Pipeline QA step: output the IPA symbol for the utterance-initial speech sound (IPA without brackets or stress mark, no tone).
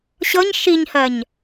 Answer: ɕ